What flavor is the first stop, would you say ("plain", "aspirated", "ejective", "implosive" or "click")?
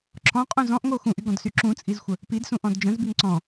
click